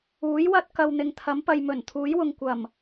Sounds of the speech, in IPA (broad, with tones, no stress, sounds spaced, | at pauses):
uː˨˥ j w ɐ˥ t̚ k ɐ˨ w n̪ ɪ˨ ŋ t̪ʰ ɐ˨˥ m p ɐ˨ j m ɵ˨˩ n t̪ʰ uː˨˥ j w ʊ˨ ŋ kʷ ɐ˨˩ m